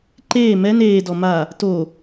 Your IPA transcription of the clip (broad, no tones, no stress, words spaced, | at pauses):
ǃeː mɛn eːdɔ ma | to